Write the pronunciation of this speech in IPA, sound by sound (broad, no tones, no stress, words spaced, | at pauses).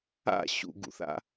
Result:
a̰ ɕṵɡṵθa̰